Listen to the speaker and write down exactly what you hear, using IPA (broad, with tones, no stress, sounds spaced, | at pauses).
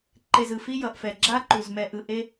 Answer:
ǃ e˨ z ɯ˨ f i˦ j ʌ˨ ʔ f ɛ˨ ɡ͡ǁ a˦ ǃ u˨ z m ɛ˨ ʔ ɯ˨ ʔ e˦